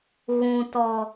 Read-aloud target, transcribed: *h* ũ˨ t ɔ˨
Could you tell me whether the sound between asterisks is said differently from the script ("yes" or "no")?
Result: yes